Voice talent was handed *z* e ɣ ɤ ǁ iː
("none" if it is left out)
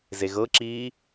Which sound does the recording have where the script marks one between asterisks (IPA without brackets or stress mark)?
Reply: z